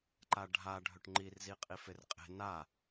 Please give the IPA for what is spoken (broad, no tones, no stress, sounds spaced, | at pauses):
ǃ a ɖʱ a ɖʱ ɵ ʈ ŋ͡ǃ i r z i qʼ i f e r qʼ e̤ n a